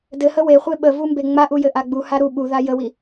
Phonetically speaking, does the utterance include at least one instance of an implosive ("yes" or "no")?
yes